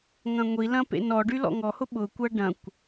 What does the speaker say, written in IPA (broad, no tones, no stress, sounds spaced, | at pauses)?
ŋ ɐ̃ ŋʷ i l ɐ̃ p ḛ n ɔ ɖ y l ɔ̰ ŋ ɔ h ʊ ɓ ʊ kʷ ɐ ɖ ɐ̃ kʷ